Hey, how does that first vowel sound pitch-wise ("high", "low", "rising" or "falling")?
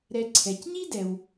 low